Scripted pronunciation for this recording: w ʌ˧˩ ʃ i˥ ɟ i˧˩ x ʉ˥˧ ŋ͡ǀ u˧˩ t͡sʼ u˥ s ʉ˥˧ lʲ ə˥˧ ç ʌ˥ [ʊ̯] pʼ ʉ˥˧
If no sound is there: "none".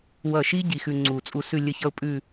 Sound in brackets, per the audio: ʊ̯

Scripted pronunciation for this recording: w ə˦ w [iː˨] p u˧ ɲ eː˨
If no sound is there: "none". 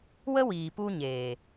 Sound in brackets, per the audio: iː˨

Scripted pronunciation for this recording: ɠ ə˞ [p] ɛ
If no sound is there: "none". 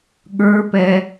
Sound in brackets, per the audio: p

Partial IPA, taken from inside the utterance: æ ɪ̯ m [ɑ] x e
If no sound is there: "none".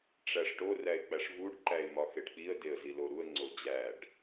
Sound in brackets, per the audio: ɒ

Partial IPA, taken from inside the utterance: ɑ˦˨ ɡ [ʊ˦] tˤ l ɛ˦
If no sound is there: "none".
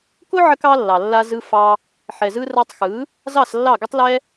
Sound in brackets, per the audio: ʊ˦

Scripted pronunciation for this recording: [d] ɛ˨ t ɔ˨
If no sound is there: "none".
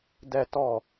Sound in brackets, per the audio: d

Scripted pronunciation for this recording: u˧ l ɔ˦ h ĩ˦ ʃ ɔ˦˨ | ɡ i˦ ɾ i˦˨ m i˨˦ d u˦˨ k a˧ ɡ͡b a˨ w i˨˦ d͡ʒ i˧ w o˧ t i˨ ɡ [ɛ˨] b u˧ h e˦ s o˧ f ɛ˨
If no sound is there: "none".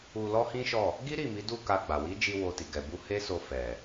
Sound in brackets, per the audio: ɛ˨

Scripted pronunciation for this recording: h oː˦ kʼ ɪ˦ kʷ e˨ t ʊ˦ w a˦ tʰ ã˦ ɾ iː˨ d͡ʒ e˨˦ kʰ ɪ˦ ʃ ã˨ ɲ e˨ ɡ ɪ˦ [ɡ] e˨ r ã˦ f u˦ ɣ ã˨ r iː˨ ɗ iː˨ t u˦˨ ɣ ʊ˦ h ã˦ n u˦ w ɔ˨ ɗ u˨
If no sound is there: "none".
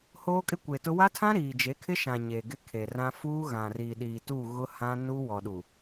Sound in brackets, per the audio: kʰ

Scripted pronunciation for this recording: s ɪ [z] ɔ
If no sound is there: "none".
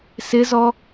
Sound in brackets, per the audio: z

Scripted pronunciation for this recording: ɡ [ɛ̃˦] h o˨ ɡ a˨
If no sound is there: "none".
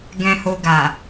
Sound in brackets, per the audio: ɛ̃˨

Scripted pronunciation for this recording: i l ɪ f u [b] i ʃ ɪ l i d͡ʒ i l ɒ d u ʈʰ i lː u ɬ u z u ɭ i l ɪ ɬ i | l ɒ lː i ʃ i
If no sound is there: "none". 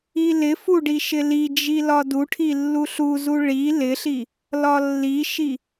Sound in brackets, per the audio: ɖ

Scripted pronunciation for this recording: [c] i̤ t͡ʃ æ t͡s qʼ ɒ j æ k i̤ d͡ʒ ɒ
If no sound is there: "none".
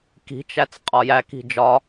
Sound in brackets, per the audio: k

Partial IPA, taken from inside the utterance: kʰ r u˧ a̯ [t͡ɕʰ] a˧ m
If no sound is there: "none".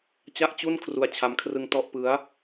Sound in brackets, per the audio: t͡ɕʰ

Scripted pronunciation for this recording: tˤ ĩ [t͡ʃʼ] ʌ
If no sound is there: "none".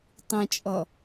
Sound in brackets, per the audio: t͡ʃʼ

